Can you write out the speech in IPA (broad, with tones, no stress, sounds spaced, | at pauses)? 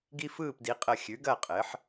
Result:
ɡ i˦ f ɯː˥˩ p d i˩˥ qʼ əː˧˩ xʲ ʉ˩˥ ɡ ɐ˥˩ qʼ ɘ˩˥ ħ